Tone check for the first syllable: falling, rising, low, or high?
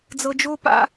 low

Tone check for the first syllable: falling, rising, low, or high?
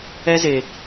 high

